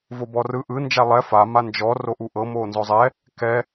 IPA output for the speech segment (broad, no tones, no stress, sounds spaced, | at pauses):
v o b ɔ r ɯ ʔ ɯ n d͡ʒ a lˠ ɛ f a m a n d͡ʒ ɔ r o ʔ u ʔ ɤ m oː n z ɔ zˤ ɛ | k ɛ